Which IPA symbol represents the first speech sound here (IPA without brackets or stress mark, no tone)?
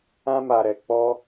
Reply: ã